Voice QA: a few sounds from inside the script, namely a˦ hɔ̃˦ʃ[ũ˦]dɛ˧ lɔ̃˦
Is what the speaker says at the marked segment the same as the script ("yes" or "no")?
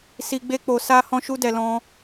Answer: no